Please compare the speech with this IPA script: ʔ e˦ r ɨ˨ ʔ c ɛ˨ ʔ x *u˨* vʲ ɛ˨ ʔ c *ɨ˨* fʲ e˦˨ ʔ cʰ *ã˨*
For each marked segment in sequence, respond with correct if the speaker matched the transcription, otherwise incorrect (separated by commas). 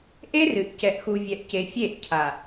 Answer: correct, incorrect, incorrect